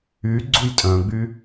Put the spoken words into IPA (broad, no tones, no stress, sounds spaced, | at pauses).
y ɡ͡ǀ u j tʼ œ̃ ɡ͡b y